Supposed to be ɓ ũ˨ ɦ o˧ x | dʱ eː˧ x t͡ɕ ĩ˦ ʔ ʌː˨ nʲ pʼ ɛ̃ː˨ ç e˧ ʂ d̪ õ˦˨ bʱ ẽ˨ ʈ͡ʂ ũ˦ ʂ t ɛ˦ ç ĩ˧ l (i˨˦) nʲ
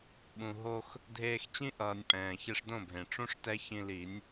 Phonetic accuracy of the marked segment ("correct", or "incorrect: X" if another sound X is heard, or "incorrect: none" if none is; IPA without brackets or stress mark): correct